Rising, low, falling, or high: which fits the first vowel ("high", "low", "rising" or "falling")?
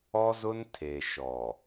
high